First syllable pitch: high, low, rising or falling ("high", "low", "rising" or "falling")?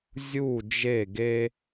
falling